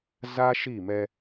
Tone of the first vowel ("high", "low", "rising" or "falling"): high